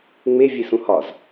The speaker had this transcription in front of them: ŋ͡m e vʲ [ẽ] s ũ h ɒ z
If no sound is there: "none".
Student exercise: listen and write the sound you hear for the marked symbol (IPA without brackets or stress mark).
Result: e